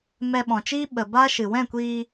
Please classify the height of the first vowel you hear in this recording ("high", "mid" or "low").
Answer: mid